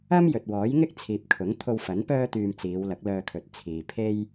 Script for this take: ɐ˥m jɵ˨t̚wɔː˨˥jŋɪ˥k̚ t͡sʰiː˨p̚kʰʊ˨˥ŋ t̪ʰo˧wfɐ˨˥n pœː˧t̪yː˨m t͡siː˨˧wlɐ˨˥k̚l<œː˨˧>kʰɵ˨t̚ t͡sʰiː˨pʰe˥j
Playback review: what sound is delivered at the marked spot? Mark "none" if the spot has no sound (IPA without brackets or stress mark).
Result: œː˧